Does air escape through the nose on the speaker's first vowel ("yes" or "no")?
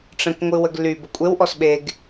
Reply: yes